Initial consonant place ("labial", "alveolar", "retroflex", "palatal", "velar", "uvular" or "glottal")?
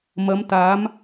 labial